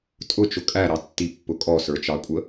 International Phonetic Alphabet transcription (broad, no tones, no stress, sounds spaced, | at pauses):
tʼ ʊ t͡ʃ ʊ kʼ æ ɾ ɑ tː i pː ʊ kʼ ɔ s ə˞ t͡ʃ ɑ kʷʼ ə